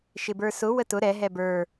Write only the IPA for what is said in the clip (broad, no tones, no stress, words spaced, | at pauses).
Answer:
ʃɪbə˞sʊ wətʊ ɾɛɦɛ bə˞